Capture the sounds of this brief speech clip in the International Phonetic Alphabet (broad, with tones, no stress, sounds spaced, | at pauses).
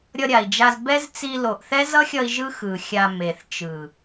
ɾʲ ʌ˧ ɾʲ a˨ i̯ d͡ʒ a˧ z b ɛ˦ z t͡s i˧ l o˨ ʔ θ ɛ˦ z ʌ˦ xʲ ʌ˧ i̯ ʒ ɯ˦ x ɯ˨ xʲ a˧ m e˨ θ t͡ʃ ɯ˨